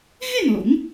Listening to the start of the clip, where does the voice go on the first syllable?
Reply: falling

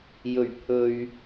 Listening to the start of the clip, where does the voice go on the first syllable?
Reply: low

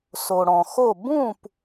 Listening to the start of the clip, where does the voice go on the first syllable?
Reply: low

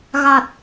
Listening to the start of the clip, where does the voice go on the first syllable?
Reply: low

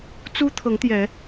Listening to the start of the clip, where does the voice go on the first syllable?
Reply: high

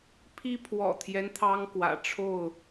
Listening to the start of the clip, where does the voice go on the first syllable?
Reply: high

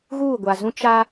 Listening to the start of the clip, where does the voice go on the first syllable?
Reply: falling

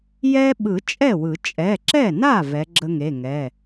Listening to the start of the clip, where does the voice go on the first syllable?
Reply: high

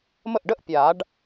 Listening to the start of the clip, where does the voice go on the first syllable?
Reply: falling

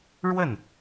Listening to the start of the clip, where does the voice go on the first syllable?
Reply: falling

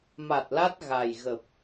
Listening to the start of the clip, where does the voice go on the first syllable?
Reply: low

